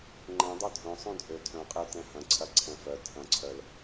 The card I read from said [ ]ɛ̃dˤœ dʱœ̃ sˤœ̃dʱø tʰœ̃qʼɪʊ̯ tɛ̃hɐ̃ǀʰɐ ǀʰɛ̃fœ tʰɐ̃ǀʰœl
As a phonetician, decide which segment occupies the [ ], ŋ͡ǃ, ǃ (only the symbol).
ŋ͡ǃ